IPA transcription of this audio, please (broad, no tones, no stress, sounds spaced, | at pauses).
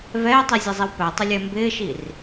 v ɛː tˤ i zʲ ɛ zˤ i w p æ tˤ ʊ lʲ ɛ m b ɪː ʃ i r